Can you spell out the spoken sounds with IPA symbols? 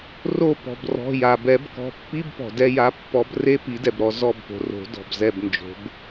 r o˦˨ p ɔ̤˩ b r ɔ̤˩˧˩ j a˩ b ɛ˨˩˦ b k ɔ̤˩˧˩ pː i˧˥˧ b p ɔ̤˩ d ɛ˦˨ j a˨˦ pː ɔ˨˦ b r e˧˥˧ p i˨˩˦ d ɛ˩ b ɾ ɔ˦˨ z ɔ˦˨ b p o̤˩ r o̤˨˩˦ d ɔ̤˩ b z ɛ˦˨ b n d͡ʒ o̤˨˦ b

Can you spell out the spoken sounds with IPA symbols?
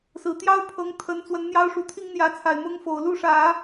s ɹ̩˨˩ t̪ j ɑ˥ ʊ̯ pʰ ɤ˧˥ ŋ t̪ʰ ə˧˥ n t͡s w ə˧˥ n n̪ j ɑ˥ ʊ̯ ʂ u˨˩ t̪ʰ i˥ ŋ n̪ j ä˧˥ t͡sʰ a˨˩ ɪ̯ m ʊ˥ ŋ f o˨˩ ʊ̯ l u˥˩ ʂ ä˨˩˦

